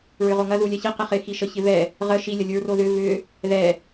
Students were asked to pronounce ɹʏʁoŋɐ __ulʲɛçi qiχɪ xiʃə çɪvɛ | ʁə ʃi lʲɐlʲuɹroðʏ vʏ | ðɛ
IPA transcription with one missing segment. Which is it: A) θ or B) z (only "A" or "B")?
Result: B